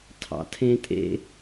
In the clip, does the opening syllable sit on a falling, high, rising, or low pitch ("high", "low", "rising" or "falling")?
low